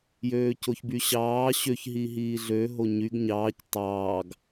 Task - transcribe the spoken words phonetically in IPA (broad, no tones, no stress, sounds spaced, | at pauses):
j øː c o ç b y ɕ ɑː ɕ ø ç ɦ i ɦ iː ɮ ø ɦ o ɲ y ɡ ɲ ɑː c tˤ ɑː ɡ